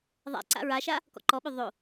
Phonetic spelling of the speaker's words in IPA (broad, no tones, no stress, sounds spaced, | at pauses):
ðˤ a̰ ǀ a̰ ɹ a ʃ a | k ɔ̰ ǃ ɔ ɓ ø ðˤ o